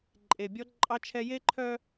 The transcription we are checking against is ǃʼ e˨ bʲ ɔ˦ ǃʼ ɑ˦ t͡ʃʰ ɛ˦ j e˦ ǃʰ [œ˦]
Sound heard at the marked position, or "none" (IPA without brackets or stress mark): œ˦